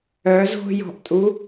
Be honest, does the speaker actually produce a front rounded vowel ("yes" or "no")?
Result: yes